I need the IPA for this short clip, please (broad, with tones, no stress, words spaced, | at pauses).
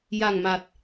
ja˨˩ŋma˨˩t̚